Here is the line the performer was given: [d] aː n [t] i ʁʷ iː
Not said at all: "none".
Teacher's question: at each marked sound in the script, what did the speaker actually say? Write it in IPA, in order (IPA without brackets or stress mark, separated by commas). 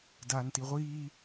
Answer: d, t